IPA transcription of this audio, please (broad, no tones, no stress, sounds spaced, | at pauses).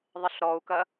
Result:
ðˤ ɪ ɬ ɾ ɔ u̯ k ɐ